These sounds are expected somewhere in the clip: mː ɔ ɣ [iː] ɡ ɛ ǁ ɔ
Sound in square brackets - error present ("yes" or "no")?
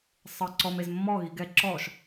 yes